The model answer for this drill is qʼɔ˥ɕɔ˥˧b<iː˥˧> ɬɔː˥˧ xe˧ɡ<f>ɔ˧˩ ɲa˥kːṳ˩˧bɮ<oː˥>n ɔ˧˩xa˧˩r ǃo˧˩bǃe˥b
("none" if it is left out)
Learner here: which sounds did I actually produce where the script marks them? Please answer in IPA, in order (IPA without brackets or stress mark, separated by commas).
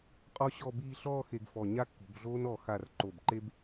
iː˥˧, f, oː˥